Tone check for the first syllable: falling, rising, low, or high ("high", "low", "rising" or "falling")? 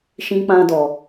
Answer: high